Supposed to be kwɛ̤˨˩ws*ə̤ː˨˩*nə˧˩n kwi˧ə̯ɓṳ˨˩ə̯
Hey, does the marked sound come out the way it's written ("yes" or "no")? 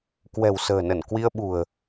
yes